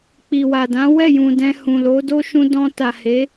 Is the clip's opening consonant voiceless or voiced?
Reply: voiceless